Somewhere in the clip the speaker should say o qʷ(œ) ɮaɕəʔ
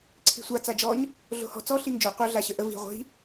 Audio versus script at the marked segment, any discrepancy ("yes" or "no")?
no